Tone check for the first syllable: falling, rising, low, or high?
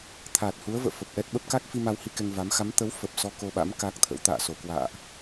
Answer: low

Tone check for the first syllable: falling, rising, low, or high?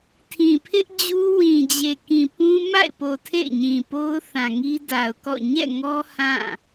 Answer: low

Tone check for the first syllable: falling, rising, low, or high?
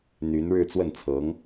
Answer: rising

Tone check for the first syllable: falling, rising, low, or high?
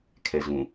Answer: low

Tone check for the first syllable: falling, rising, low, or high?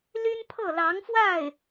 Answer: high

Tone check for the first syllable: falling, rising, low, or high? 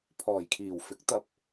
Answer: low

